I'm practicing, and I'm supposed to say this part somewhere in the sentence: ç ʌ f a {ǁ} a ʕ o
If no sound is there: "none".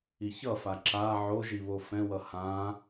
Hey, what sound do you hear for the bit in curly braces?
ǁ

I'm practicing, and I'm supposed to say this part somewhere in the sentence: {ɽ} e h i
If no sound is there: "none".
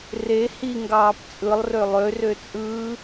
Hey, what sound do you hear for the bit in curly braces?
r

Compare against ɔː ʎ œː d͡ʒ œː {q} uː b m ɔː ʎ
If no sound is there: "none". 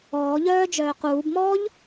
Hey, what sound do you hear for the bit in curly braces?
q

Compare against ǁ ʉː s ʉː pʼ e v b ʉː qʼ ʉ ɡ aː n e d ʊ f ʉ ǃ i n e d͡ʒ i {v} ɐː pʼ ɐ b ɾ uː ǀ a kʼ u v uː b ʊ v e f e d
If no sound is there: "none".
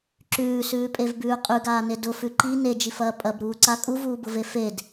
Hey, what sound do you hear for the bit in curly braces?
f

